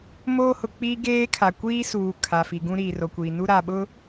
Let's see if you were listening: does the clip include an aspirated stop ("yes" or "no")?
yes